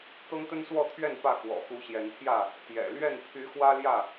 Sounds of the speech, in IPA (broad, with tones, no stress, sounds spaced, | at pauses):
t̪ ɤ˦ ŋ t̪ ə˦ n s w ɔ˥˨ t̪ʰ ɥ ɛ˥˨ n p ä˥˨ k w ɔ̰˨˩ x u˨˦ ɕ j ɛ˨˦ n t̪ʰ j ä˥˨ | t̪ j ɛ̰˨˩ l ɥ ɛ˥˨ n pʰ y˨˦ x w ä˦ l j ä˥˨